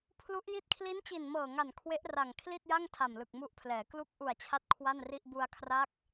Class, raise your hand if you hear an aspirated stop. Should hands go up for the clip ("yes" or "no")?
yes